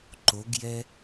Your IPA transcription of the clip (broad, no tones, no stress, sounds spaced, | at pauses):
ǃ o ɡ j ɛ